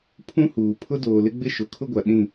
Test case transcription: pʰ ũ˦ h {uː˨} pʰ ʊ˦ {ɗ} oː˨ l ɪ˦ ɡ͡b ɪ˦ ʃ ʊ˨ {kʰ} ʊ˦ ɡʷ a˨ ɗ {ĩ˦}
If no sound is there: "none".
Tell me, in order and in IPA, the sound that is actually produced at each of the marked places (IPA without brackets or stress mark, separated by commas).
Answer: uː˨, d, kʰ, ĩ˦˨